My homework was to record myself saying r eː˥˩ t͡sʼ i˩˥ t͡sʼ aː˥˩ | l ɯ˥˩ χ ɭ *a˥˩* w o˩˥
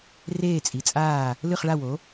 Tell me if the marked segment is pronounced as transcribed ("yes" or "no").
yes